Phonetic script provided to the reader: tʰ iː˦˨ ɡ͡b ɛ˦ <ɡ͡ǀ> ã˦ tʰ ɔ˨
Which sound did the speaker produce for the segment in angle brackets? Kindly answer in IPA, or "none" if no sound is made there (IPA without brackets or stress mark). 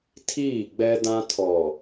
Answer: d